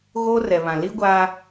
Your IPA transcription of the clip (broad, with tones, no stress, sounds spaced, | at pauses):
ɣ oː˦ r ɛ˨ β ã˨ l i˦ ɡʷ aː˦